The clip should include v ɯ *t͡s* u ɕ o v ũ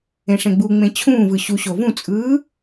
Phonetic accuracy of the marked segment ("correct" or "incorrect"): incorrect